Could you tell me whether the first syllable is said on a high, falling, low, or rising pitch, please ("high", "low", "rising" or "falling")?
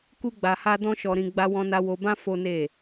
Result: high